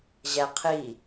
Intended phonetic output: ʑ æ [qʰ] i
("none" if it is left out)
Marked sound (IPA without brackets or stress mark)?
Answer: qʰ